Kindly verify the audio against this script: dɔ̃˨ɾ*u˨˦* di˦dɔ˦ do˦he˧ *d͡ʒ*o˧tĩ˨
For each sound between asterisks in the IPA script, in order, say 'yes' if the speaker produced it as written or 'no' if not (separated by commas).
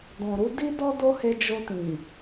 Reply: yes, yes